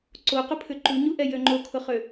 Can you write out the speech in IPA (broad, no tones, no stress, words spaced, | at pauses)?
ǀoqʊpʰʏ ǃuɲuʔɛ jøŋ͡ǃokʰʊχø